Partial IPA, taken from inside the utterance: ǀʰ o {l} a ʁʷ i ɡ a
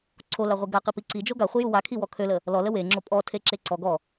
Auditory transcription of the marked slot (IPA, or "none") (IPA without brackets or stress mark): l